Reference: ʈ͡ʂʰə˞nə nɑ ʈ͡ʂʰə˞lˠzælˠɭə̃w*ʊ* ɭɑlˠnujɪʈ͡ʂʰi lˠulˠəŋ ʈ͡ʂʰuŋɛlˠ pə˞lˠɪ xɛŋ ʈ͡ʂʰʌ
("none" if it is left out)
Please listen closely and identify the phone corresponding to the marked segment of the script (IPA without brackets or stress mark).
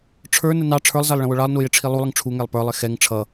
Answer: ʊ